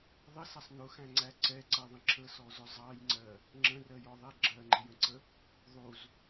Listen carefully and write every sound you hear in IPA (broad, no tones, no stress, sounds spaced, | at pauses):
ðˤ ɪ s ʌ sˤ n ʊ x æ̃ ŋ͡ǀ æ ǀ ɛ ǀ ɜ ðˤ ə̃ ǁʰ ə s ɔ z ʊ zˤ ɑ j ŋ͡ǀ ɜ | ŋ͡ǁ ə̃ r ɜ j ɔ ðˤ ɛ ɡ͡ǁ ɜ ŋ͡ǃ ɪ j ə̃ ǀ ə | ðˤ u z